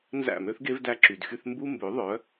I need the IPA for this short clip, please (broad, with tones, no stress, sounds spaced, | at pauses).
n z æ̰˦˨ m ø˦ θ ɡ e˦ v d æ˧ ǁ y˨ d x y˧ θ m b u˦ m b ø˨˦ ðˤ œ˨˦